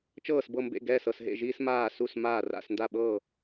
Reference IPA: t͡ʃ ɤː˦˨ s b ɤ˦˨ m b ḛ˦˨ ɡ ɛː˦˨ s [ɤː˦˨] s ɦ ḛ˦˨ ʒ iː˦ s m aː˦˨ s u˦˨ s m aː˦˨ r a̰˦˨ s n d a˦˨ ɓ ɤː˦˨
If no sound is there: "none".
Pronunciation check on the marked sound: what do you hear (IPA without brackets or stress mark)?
ɤ˦˨